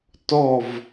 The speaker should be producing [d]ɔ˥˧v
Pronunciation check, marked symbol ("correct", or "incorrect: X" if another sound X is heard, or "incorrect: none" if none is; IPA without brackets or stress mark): incorrect: t